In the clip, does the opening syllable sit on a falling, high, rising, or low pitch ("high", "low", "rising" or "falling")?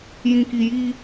low